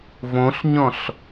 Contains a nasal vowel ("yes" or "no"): yes